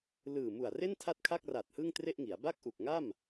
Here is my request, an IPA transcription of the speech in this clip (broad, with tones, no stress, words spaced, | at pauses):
lɯː˨˩mu˨˩a̯ re˥˩n tʰa˥˩t̚kʰa˥˩k̚ra˨˩t̚ hɯ˥˩ŋtre˥˩ʔŋi˩˦a̯ ba˥˩k̚ʔu˨˩k̚ŋa˥˩m